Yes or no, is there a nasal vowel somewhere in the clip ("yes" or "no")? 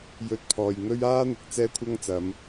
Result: no